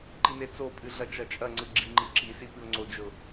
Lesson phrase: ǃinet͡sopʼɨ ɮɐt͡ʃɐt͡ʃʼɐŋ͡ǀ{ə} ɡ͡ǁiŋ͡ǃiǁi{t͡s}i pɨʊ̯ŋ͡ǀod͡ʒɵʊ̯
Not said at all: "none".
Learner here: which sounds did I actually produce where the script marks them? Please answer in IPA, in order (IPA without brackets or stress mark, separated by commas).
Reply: ɨ, s